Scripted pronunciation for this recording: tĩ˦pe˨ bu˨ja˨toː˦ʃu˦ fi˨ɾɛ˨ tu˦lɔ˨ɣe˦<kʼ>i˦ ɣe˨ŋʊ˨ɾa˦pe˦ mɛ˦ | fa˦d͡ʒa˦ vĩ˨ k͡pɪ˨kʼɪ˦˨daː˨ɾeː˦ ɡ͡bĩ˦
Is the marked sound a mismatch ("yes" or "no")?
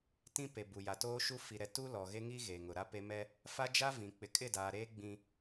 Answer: yes